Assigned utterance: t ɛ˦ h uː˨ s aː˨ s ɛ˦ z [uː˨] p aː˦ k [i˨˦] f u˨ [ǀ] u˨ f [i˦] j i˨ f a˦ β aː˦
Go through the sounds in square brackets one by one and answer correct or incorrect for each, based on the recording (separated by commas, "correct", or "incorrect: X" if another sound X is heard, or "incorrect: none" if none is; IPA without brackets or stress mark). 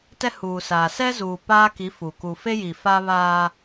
correct, correct, incorrect: k, incorrect: e˦